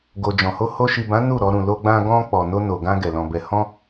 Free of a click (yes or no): yes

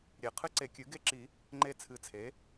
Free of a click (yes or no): no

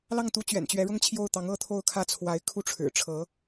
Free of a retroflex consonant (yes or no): no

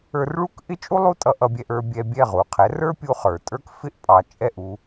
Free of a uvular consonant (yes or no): no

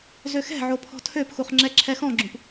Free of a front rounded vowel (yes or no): no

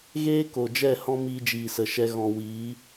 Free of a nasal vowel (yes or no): no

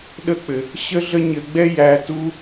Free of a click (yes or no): yes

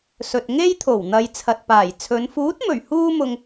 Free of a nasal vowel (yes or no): yes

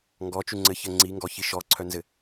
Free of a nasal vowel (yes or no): yes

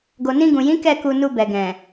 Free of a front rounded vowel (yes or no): yes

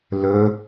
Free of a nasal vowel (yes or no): yes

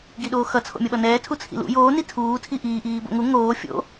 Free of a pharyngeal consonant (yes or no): yes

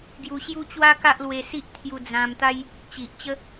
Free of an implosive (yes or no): yes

